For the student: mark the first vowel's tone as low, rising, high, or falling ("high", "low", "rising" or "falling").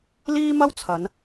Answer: high